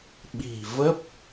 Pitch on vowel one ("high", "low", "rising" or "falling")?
low